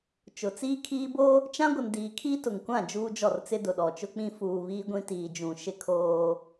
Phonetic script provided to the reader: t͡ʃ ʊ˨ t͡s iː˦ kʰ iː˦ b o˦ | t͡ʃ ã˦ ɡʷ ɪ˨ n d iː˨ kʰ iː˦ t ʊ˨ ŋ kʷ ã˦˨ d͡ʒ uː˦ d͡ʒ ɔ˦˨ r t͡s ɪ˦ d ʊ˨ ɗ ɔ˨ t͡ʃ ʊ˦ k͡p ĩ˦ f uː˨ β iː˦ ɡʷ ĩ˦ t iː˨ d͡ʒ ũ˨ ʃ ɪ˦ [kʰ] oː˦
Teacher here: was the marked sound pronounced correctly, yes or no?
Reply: yes